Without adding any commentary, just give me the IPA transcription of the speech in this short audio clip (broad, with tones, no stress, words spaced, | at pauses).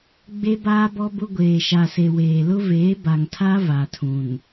ɡ͡be˦baː˦bɔ˦bʊ˦ ɡʷeː˨ʃa˨se˨ weː˨lʊ˦veː˨˦ ba˨ŋtʰa˦ va˨tʰũ˨n